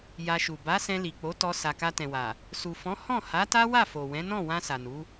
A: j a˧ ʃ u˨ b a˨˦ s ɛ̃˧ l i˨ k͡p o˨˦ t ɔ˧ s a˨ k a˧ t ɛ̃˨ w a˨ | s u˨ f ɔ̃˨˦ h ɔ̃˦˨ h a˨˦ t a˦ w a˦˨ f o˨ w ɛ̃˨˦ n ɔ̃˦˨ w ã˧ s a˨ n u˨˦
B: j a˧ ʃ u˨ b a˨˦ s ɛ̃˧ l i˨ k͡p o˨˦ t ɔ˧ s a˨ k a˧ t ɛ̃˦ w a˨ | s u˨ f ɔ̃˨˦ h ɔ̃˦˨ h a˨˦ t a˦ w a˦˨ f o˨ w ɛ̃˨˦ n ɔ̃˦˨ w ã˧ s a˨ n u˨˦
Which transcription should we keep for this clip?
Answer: A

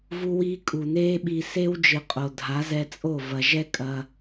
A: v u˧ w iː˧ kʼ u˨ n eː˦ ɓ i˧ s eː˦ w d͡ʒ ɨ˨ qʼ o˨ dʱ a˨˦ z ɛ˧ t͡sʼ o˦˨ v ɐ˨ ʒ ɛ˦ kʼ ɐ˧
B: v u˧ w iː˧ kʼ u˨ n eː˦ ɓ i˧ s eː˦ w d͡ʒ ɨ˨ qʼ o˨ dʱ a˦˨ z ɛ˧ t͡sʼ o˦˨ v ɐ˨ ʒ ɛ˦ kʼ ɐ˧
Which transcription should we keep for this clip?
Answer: A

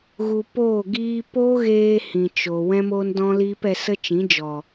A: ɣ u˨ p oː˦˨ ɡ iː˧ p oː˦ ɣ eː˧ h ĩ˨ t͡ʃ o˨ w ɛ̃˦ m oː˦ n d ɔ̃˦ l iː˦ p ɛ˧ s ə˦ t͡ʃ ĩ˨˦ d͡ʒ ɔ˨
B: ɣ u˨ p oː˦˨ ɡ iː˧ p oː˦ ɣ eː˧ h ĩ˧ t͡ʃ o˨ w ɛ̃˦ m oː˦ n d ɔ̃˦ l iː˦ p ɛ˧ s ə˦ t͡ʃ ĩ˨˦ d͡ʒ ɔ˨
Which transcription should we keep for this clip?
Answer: A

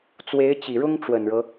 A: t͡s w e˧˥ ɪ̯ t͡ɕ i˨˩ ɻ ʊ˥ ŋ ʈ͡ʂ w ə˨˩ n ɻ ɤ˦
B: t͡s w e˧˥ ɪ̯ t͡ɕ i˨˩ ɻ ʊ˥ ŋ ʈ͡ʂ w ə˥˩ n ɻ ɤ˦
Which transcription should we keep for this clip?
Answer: A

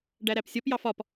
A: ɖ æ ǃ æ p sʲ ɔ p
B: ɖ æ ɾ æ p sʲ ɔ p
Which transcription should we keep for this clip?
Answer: B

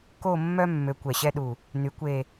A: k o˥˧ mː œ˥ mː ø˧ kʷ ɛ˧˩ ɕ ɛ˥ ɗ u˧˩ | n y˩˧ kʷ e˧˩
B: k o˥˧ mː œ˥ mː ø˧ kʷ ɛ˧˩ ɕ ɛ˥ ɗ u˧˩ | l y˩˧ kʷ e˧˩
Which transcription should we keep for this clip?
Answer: A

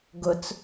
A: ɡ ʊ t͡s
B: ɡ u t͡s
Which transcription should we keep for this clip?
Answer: A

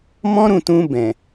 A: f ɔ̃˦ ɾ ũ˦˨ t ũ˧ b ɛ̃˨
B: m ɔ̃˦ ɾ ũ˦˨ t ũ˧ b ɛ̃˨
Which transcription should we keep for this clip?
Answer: B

